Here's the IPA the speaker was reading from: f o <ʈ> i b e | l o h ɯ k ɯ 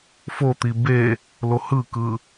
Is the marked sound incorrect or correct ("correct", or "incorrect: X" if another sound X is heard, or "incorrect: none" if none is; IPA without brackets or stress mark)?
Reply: incorrect: t̪